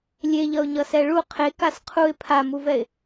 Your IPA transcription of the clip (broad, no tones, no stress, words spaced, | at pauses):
lʲeʎʌʊ̯ɲʌsɛ ɭu qʰe kasqʰuɪ̯ pʰamuvɛɪ̯